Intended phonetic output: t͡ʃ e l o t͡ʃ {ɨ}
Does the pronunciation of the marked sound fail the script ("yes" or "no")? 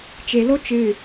no